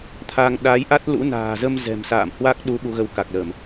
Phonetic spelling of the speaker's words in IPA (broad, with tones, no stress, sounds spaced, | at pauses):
t̪ʰ a˧ ŋ ɗ a˨˦ j ʔ a˦˥ t̚ l ṵ˧˥ n a̤ː˨˩ z ə˧ m z ɛ̤˨˩ m s a̰ː˧˨ m h w a˦˥ k̚ ɗ u˨˦ ɓ u˨˦ ɣ ə˨˦ w k a˨˩ k̚ l ə˧˩˨ m